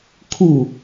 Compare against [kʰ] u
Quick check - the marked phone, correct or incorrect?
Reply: correct